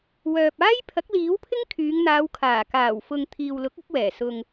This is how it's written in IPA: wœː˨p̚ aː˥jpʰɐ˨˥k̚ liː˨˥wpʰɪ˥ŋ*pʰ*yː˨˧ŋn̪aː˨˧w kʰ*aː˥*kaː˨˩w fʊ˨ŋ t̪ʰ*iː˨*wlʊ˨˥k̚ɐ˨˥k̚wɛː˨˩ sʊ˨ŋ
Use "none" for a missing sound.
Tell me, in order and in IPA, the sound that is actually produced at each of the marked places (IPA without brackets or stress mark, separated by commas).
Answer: kʰ, aː˨˩, iː˨